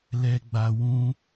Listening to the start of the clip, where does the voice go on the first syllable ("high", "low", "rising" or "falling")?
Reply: low